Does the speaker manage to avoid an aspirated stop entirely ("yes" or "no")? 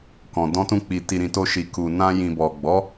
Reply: yes